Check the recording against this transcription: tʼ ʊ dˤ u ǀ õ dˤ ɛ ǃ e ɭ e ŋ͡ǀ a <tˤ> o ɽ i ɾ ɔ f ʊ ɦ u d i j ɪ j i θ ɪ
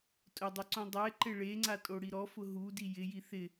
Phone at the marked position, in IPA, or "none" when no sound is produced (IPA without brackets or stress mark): tʼ